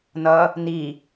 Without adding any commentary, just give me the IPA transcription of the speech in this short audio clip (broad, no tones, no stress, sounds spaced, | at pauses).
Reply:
n ʌ | n i